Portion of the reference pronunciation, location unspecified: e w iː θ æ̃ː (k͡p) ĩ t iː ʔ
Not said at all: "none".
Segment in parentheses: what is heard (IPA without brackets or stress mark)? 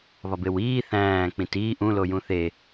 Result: k͡p